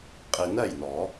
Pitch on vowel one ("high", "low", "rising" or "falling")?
low